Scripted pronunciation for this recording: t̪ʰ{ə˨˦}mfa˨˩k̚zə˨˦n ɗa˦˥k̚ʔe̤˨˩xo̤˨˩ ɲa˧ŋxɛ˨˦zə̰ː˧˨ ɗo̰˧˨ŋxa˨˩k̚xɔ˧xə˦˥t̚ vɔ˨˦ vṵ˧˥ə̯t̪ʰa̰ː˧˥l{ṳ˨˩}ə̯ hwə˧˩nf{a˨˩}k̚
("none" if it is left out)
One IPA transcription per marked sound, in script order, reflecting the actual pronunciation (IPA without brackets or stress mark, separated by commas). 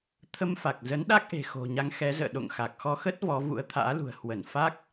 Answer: ə˧, ṳ˨˩, a˦˥